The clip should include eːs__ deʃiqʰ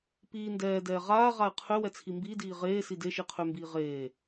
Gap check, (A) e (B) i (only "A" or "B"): B